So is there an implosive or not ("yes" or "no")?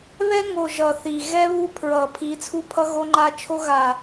no